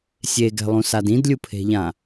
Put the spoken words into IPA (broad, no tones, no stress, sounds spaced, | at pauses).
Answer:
sʲ e ɡ ɛ̤ lˠ ũ s a d ĩ d lʲ u pʰ e̤ ʎ ã